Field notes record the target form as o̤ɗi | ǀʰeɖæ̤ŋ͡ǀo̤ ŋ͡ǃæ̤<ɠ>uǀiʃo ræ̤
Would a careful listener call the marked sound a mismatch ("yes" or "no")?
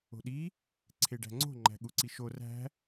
no